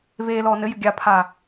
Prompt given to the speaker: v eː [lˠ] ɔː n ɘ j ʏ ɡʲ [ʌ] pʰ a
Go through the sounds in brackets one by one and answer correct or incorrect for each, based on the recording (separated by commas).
incorrect, incorrect